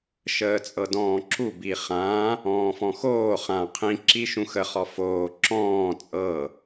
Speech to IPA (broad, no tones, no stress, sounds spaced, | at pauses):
ʃ əː t͡sʼ ɤ d ɔ̃ː ǁ u b i χ ã | ɔ̃ː f ɔ̃ x oː χ ã qʰ ĩ ǁ i ʃ ũ x ə χ ɔ f oː ǁ ɔ̃ː t͡sʼ ɤ